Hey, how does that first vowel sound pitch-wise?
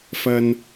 high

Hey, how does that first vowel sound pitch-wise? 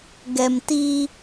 low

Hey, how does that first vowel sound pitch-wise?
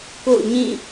falling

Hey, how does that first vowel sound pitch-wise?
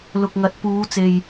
low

